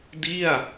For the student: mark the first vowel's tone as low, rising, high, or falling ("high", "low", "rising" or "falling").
falling